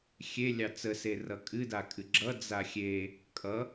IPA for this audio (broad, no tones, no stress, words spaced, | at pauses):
xʲe lʲɑt͡sə serʌkʼɨ dakʼɨɡ͡ǁʌ d͡zaxʲe | kʼʌ